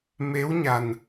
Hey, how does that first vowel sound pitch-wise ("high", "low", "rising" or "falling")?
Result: rising